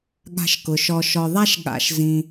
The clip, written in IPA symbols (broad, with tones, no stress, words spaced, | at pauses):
ɠa̤˨ʃkʊ˩ ʃɔ˨ʃɔ˨ðˤa˦ʃ ɠa̰˨ʃ zĩ˨